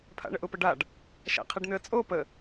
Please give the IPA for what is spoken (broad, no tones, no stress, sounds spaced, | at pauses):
pʰ a̰ ɳ ə ʔ ʊ p ə ɖ a ɖ | ʃ a̰ qʰ ɛ ɖ n̪ ʏ ə̯ t͡sʼ o p ə